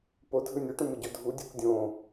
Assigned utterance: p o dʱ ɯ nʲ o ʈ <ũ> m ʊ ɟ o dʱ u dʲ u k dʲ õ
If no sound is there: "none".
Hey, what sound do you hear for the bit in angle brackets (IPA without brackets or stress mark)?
ũ